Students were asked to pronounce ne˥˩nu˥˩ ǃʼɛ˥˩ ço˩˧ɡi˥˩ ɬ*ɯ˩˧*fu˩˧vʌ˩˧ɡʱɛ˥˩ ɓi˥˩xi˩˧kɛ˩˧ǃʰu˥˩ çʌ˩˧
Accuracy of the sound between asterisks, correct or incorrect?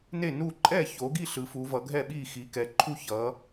correct